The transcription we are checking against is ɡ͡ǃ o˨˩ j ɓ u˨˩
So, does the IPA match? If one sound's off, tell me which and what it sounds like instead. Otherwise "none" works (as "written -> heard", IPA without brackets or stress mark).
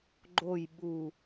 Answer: none